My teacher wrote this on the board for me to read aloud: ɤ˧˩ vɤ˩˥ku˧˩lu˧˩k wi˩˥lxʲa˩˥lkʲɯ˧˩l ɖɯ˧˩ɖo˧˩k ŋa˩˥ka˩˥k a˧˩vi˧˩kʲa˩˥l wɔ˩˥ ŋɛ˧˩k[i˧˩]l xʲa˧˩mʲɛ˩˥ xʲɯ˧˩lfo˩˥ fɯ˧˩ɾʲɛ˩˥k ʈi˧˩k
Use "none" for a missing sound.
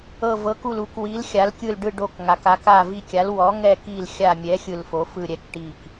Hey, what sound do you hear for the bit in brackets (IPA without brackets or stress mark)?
i˧˩